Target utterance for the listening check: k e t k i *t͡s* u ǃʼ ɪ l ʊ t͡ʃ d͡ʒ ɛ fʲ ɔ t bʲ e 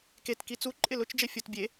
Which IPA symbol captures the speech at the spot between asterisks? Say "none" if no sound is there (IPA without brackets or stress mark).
t͡s